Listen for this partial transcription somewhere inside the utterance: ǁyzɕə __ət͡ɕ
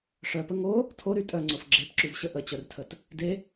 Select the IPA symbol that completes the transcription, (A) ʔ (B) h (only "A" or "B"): A